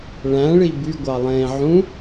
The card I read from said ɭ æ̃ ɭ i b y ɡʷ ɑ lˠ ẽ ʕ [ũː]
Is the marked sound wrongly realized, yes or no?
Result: yes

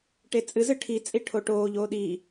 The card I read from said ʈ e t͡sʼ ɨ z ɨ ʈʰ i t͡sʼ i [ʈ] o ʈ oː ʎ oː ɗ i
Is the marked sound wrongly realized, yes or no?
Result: yes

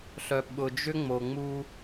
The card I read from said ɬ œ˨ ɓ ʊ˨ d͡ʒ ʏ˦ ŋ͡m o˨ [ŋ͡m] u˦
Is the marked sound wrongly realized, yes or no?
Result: no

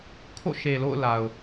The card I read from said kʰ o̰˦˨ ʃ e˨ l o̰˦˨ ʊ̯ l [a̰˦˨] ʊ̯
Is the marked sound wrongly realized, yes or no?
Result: yes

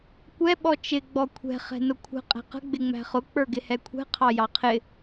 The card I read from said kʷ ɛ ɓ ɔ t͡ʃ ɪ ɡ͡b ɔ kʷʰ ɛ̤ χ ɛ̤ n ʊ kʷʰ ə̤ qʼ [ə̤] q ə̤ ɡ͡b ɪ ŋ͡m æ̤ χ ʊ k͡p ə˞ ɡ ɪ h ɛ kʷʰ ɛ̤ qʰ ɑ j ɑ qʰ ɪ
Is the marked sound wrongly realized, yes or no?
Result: yes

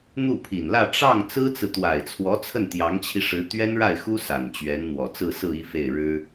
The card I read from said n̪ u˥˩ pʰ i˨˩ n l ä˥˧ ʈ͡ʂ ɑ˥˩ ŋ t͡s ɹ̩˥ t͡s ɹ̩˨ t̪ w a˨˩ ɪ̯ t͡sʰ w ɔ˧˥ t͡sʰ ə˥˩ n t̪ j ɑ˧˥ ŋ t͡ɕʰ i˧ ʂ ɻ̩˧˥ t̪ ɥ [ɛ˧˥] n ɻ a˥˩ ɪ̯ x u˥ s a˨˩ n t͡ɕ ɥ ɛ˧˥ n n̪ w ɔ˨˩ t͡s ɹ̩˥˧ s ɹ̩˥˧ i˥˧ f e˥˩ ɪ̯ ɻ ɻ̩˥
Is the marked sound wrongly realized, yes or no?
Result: yes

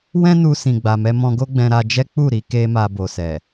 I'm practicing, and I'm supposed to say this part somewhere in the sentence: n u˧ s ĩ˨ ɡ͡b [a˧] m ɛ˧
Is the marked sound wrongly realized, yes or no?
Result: yes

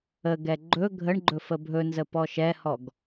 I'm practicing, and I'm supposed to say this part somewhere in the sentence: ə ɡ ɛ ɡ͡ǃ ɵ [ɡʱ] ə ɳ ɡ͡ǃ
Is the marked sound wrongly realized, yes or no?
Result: no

